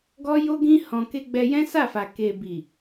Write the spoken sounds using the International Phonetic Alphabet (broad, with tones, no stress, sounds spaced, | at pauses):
ɡ ɔ˦ j o˦ ɡ ĩ˦ h ɔ̃˧ k e˦ ɡ͡b ɛ˧ j ɛ̃˦ s a˦˨ f a˨ k e˨ b i˨